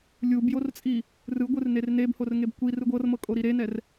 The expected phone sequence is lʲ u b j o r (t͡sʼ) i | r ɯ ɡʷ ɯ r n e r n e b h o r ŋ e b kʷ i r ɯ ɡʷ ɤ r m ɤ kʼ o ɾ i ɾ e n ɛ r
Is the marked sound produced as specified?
yes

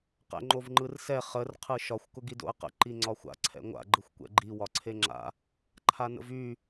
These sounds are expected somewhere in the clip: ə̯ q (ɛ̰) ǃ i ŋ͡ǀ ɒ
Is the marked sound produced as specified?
no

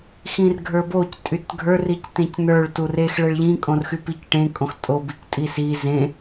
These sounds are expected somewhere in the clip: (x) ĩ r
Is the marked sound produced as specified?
yes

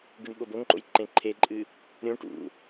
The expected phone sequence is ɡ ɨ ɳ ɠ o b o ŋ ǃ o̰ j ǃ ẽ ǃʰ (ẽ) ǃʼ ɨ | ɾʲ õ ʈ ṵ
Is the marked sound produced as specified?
no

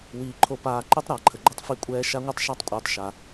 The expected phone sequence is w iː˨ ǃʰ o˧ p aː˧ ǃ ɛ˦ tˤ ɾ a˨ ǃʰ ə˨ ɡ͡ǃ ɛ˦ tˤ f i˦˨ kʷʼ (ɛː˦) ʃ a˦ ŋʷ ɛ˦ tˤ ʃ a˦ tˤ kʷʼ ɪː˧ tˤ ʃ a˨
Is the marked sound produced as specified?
yes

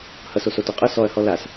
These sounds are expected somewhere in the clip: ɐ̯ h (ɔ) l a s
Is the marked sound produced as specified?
yes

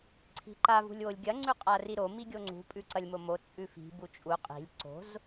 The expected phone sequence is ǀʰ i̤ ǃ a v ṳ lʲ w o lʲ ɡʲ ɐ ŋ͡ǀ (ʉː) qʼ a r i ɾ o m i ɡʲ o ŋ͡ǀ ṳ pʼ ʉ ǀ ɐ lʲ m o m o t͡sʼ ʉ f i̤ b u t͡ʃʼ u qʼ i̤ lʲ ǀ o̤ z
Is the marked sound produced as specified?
no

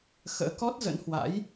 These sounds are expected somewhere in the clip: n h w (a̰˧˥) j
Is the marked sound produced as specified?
yes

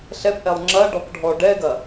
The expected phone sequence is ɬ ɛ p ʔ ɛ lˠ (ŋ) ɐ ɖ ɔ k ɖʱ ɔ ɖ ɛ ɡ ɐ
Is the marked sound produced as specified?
no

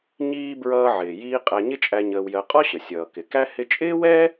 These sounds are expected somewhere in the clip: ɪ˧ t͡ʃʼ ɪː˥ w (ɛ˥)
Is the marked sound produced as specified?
yes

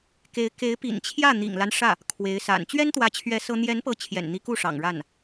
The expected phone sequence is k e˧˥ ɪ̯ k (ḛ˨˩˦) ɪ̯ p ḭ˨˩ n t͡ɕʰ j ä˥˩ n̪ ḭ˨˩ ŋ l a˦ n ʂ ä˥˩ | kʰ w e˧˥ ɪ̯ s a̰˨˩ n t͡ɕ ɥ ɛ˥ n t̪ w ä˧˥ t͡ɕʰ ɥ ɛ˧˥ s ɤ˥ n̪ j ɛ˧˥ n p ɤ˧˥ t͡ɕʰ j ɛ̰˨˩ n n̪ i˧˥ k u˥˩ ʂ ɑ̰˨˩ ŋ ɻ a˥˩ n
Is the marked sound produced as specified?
no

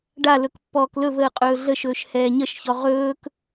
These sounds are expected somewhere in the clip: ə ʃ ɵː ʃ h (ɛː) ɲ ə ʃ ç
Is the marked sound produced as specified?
yes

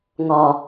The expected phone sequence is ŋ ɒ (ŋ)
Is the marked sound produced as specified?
no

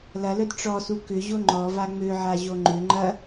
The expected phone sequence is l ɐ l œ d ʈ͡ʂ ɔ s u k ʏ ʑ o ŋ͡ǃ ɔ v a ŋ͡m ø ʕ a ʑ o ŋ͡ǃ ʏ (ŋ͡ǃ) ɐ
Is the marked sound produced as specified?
yes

